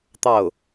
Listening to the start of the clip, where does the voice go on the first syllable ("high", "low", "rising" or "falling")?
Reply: falling